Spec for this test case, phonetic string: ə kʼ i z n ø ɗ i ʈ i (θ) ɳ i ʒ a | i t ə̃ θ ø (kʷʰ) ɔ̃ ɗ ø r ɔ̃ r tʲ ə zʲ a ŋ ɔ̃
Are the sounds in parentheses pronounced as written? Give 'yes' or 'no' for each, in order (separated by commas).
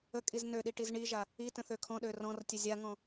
no, no